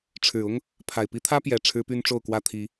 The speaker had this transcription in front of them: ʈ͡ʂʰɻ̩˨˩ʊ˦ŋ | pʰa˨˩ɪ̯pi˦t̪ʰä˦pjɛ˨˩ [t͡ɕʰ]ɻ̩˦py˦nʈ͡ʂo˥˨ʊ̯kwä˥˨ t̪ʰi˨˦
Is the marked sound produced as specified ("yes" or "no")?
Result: no